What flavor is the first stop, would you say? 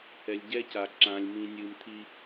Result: plain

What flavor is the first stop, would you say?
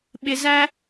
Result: implosive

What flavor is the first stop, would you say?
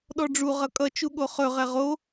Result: implosive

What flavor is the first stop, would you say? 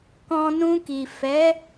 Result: plain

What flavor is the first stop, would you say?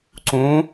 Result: click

